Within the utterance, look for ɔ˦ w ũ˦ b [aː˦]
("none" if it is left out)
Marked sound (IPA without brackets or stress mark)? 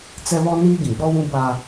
aː˦